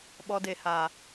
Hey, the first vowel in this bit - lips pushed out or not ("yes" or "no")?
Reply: yes